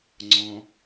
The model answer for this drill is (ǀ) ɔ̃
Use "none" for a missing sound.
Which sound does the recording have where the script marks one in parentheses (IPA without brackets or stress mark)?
ŋ͡ǀ